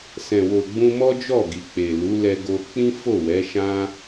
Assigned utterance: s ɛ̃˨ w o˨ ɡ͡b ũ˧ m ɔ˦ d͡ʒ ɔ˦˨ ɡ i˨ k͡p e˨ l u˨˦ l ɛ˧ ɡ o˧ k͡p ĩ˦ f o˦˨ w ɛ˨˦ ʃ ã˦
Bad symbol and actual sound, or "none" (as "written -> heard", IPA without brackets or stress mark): none